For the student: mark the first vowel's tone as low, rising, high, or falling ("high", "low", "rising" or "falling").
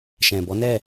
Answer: low